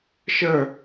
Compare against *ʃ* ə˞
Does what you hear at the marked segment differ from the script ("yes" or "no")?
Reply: no